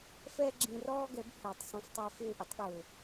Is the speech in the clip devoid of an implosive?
no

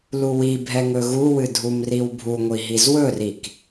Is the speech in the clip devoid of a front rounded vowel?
yes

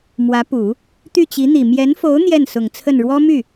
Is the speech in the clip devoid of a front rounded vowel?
no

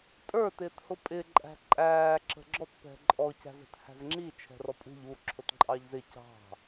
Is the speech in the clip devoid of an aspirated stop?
no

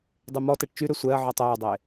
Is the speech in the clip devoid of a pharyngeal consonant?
no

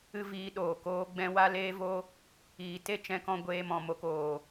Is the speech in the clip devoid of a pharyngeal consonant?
yes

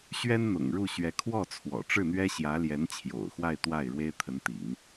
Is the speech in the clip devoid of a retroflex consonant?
no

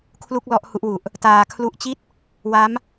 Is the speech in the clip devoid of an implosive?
yes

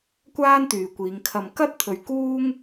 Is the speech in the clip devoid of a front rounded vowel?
no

